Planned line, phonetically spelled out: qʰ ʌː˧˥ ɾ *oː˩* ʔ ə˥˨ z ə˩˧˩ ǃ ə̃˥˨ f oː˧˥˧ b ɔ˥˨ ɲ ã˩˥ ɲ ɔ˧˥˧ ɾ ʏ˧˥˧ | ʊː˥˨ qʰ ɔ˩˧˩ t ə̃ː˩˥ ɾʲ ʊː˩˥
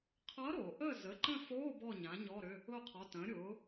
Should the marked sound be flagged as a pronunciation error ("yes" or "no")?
no